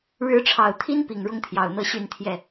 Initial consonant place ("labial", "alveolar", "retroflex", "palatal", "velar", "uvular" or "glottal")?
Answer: retroflex